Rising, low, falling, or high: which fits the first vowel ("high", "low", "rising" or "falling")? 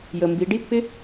low